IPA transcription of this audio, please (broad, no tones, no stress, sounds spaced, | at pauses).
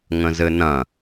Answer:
ŋ ə̃ z ɘ n ɐ̃